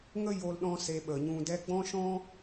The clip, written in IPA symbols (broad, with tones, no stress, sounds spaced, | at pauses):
ŋ ə˦ j o˨ l ɗ ɔ̃˦ s e˧ ɓ ə˨ ɲ ũ˧ d ɛ˧ ɡ͡b ɔ̃˦ ʃ ɔ̃˦